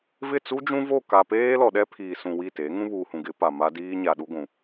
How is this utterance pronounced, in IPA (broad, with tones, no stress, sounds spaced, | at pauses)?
v ɪ˦˨ t͡s u˦ d͡ʒ ũ˦ v o˦˨ k a˨ p eː˦ l ɔ˨ ɗ ɛ˦ pʰ iː˨ s ũ˨ w i˦˨ t e˨˦ ŋ ũ˦ β uː˨ h ũ˨ ɡ ɪ˨˦ p a˨ m a˦ d iː˦ ɲ a˨ ɗ u˦ ɡʷ ũ˨